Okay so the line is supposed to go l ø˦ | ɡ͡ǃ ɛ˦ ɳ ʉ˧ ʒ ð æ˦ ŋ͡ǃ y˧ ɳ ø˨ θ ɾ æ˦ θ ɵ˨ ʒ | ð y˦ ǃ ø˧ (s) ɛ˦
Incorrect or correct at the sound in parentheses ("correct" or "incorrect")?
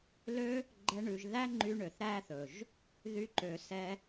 correct